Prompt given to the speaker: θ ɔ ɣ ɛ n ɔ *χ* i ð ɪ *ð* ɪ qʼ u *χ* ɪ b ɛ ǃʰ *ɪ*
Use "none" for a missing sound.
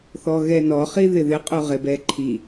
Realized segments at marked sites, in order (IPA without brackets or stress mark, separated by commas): χ, ð, ʁ, i